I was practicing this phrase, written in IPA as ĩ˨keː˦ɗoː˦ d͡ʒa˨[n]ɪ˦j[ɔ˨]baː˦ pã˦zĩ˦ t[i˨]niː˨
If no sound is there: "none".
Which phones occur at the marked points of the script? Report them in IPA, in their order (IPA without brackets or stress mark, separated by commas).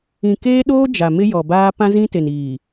m, ɔ˨, e˨